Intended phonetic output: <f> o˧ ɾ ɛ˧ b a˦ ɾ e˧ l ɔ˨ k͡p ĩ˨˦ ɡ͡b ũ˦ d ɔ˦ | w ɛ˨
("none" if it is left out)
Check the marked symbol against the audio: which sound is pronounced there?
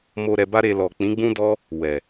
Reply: m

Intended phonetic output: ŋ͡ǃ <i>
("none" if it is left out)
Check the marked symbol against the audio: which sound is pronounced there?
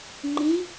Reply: ĩ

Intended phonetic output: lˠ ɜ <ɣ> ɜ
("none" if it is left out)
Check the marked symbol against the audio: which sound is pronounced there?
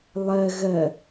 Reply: ɣ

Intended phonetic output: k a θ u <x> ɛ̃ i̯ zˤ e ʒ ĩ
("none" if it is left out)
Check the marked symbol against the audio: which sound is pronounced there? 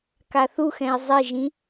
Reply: x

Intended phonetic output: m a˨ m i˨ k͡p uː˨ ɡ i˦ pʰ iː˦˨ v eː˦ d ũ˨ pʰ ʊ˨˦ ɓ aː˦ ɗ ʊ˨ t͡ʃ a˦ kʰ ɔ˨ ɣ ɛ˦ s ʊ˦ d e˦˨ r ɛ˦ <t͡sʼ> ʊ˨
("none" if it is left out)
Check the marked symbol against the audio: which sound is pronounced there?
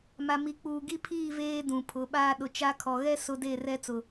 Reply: t͡s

